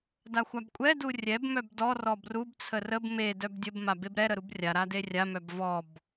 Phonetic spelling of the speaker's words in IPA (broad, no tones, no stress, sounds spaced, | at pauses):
d a xʷ a b kʷʼ ɛ d u rʲ ɛ b m œ b d ɔ r ɔ b r u b t͡sʰ ə r ə b m e d œ b dʲ ə b m a b e b ɾ ɛ ɾ ə ɾ u b rʲ a ɾ a d e rʲ a m œ b v ɔ b